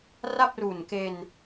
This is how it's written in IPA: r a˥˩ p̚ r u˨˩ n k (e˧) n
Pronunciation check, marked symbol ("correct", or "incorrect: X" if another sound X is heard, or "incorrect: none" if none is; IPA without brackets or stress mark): correct